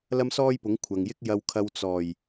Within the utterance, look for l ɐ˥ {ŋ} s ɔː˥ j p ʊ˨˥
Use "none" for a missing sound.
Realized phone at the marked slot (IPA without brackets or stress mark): m